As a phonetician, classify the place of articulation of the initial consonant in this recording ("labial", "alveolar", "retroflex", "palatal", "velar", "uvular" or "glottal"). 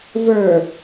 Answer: labial